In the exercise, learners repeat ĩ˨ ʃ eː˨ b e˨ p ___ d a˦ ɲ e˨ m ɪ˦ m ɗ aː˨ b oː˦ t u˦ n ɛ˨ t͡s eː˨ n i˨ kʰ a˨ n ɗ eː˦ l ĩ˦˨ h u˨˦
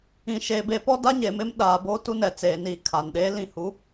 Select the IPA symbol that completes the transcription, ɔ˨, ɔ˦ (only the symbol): ɔ˦